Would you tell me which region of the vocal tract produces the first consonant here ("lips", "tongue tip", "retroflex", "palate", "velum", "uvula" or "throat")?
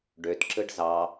retroflex